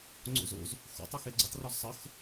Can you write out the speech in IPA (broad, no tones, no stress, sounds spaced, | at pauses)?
ŋ͡ǀ o̰ z o̰ z | x o̰ tˤ e x e ɡ͡ǀ ə tˤ r ɔ z sˤ ə x